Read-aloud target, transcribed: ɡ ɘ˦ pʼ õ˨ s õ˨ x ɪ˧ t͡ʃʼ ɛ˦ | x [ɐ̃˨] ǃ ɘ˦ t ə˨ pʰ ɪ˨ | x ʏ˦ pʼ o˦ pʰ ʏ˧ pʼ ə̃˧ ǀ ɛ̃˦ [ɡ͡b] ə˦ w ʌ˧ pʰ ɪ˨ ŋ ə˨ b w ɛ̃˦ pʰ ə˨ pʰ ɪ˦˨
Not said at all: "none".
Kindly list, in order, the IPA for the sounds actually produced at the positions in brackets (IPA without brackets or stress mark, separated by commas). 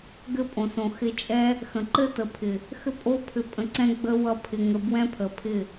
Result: ə̃˨, ɡ͡b